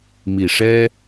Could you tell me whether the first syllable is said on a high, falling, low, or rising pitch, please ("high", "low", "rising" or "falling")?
low